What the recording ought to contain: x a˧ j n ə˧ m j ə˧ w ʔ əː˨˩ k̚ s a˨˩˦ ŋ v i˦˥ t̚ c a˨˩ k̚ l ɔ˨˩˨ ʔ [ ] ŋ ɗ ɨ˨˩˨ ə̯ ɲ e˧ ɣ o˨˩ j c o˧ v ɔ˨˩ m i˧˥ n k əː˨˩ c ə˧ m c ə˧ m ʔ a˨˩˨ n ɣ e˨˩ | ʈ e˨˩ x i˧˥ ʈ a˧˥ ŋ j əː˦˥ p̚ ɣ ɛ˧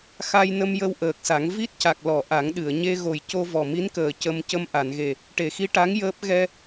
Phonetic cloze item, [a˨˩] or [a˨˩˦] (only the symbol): a˨˩˦